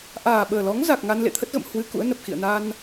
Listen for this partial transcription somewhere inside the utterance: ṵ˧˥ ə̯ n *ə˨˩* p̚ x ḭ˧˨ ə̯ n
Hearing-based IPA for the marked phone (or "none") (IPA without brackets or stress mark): ə˨˩